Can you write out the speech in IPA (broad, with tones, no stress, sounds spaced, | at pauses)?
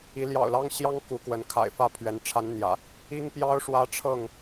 i˨˦ l j ɑ̰˨˩ ʊ̯ l ɑ˦ ŋ ɕ j ɑ˦ ŋ k u˨˦ k w ə˨˦ n kʰ a̰˨˩ ɪ̯ f ä˥˨ pʰ ɥ ɛ˨˦ n ʈ͡ʂʰ a˨˦ n n̪ j ä̰˨˩ | i˦ ŋ p j ɑ˦ ʊ̯ ʂ w ä˦ ʈ͡ʂʰ ɤ˥˨ ŋ